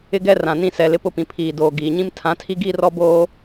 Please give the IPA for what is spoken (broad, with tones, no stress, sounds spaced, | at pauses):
ɪ˦ ɡ ɛ˦ r ã˨ n ĩ˦ s ɛ˦ l ɪ˦ p ʊ˦ p ĩ˨ pʰ iː˨ d oː˨ ɡ iː˨ ɲ ĩ˦ m tʰ ã˨˦ tʰ i˦ ɡ iː˦ r ɔ˦ b oː˦